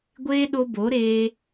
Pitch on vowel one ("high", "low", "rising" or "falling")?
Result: high